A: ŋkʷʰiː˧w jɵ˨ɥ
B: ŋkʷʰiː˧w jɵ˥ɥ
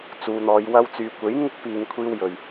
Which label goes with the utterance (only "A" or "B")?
A